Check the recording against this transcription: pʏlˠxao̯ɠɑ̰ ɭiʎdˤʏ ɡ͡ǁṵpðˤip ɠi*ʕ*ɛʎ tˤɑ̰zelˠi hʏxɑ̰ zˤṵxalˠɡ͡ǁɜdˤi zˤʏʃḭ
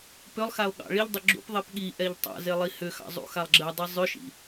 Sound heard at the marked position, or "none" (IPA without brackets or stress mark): ʔ